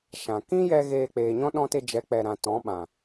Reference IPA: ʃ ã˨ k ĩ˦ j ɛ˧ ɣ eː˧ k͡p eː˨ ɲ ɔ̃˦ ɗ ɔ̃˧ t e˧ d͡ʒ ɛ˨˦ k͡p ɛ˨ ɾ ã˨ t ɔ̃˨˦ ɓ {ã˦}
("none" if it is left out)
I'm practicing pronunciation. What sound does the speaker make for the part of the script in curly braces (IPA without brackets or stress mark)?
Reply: ã˨